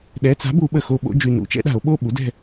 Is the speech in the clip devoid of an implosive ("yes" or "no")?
no